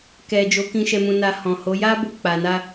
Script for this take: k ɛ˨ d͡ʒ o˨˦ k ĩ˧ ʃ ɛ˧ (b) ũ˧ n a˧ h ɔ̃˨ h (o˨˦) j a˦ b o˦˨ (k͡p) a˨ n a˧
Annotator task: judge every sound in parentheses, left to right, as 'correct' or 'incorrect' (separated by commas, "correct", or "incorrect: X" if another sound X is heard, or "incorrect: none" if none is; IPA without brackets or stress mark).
incorrect: m, correct, correct